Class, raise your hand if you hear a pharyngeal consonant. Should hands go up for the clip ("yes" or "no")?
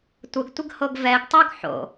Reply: yes